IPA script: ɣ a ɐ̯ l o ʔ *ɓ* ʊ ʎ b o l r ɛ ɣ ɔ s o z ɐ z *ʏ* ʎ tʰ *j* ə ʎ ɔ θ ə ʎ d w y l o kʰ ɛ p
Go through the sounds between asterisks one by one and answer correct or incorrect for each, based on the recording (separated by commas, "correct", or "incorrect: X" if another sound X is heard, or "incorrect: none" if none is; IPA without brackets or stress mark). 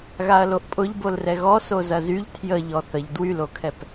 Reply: incorrect: pʼ, incorrect: y, correct